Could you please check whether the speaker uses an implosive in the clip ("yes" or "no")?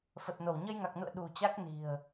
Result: yes